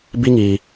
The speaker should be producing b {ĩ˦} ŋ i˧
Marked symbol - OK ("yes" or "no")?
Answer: no